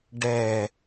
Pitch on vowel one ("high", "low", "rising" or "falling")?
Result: low